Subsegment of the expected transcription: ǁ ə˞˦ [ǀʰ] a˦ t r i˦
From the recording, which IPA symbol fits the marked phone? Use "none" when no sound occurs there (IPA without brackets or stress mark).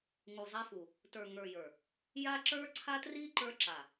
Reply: ǀʰ